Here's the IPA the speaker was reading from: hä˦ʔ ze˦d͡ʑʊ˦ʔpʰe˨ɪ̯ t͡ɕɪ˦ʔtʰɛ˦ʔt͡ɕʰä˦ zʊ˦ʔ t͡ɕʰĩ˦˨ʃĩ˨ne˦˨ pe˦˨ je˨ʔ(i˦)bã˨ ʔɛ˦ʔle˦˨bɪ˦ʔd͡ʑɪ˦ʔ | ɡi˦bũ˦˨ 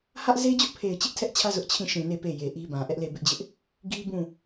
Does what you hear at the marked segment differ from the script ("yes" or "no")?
no